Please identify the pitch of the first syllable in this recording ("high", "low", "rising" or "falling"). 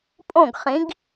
falling